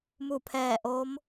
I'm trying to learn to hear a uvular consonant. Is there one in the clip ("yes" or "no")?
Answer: no